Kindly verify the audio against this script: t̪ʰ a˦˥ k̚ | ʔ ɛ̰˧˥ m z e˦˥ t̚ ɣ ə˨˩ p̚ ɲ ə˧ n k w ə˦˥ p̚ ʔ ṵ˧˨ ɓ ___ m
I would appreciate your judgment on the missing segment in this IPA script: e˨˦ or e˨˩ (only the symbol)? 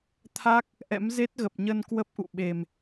e˨˩